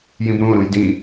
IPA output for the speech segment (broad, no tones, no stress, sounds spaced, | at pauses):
j ĩ b ɾ ũ o̯ ɾ ũ j d ĩ